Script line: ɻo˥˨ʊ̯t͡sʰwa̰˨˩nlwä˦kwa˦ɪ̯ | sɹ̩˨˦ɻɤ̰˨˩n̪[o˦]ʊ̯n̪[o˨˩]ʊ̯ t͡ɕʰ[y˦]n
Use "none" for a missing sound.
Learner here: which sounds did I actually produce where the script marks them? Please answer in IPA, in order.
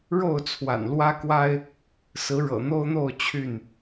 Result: o˦, o˥˨, y˥˨

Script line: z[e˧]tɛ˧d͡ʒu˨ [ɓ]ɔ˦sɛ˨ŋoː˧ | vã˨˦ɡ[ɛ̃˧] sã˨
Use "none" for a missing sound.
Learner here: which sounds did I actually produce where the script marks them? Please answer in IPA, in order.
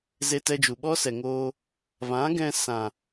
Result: e˧, ɓ, ɛ̃˧

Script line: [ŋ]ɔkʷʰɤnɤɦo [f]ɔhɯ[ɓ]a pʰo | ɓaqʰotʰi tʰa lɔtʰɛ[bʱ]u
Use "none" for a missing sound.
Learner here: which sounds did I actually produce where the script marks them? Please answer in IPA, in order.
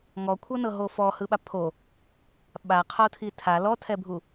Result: ŋ, f, ɓ, bʱ

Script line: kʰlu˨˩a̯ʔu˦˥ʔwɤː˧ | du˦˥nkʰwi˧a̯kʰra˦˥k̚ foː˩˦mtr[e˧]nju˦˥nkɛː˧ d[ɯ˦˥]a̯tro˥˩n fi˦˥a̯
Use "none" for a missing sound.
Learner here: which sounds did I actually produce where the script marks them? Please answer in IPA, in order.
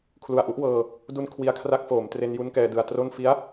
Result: e˧, ɯ˧

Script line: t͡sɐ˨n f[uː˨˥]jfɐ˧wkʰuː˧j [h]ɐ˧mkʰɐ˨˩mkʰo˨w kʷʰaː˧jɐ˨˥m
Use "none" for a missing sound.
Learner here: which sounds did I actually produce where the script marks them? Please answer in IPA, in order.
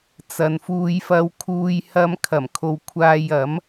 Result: uː˧, h

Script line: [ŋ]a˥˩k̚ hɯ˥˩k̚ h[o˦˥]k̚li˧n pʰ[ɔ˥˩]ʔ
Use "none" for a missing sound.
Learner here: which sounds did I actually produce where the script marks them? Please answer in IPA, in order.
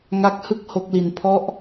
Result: ŋ, o˦˥, ɔ˦˥

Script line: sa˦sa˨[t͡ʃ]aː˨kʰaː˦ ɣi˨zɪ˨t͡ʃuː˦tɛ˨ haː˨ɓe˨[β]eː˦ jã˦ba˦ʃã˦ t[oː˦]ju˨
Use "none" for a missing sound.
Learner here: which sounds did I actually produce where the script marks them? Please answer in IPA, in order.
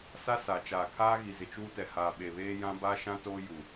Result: t͡ʃ, β, oː˦

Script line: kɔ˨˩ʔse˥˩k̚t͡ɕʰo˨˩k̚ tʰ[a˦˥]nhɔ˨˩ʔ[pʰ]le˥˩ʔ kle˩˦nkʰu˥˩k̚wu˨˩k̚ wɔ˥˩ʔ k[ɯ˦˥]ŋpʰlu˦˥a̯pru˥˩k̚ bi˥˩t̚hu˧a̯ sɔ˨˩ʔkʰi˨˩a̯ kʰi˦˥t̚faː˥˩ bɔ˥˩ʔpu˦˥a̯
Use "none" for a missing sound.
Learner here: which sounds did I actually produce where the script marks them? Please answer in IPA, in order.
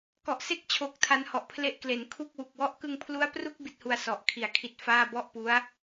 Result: a˦˥, pʰ, ɯ˧

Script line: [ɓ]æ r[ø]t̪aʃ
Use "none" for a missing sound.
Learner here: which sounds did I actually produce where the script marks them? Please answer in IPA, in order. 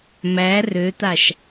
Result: m, ø

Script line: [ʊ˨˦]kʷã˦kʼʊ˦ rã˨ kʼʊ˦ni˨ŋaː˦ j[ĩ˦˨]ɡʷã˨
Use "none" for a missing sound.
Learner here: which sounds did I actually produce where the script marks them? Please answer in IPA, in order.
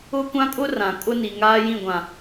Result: ʊ˦, ĩ˦˨

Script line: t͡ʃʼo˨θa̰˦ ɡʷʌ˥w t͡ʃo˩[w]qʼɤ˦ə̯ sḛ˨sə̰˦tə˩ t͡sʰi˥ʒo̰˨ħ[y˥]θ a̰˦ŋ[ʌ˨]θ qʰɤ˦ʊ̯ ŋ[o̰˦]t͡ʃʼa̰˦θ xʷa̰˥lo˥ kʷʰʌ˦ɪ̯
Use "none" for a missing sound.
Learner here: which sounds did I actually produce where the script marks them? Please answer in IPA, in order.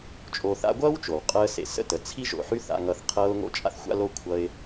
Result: w, y˥, ʌ˦, o̰˦

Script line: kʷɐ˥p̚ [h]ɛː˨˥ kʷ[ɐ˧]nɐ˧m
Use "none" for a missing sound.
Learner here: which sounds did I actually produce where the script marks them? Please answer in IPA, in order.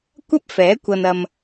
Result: f, ɐ˧

